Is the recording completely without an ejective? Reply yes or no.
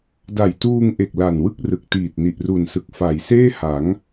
yes